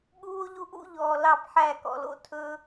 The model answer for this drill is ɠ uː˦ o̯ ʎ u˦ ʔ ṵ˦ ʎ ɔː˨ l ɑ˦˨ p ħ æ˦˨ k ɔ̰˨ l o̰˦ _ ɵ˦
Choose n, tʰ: tʰ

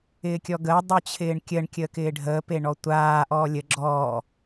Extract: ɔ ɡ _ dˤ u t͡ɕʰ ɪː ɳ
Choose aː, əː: əː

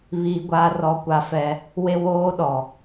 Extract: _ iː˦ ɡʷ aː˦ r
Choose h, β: β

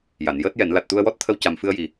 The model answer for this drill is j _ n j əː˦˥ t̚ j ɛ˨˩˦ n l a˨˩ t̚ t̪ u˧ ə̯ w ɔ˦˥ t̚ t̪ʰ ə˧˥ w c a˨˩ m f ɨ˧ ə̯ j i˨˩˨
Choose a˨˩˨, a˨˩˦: a˨˩˨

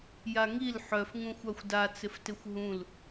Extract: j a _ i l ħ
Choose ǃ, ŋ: ŋ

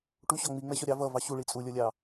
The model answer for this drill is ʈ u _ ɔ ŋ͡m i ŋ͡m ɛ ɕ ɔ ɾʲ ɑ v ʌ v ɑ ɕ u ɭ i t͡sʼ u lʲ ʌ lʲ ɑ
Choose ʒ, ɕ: ɕ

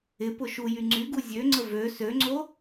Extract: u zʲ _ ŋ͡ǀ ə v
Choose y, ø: ø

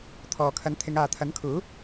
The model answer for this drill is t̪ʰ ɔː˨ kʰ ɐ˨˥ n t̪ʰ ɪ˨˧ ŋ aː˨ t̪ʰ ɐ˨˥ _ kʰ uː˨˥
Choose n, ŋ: n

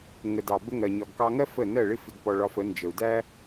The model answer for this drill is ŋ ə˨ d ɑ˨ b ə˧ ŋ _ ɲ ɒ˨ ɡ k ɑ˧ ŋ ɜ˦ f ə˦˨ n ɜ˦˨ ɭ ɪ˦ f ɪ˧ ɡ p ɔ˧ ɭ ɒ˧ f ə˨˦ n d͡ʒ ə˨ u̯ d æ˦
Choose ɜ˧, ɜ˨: ɜ˨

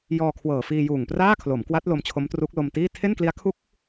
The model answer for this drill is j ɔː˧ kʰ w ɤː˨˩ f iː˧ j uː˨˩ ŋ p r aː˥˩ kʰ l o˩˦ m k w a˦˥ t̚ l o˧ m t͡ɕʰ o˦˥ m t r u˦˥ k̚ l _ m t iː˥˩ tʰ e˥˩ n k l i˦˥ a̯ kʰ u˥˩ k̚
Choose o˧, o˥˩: o˧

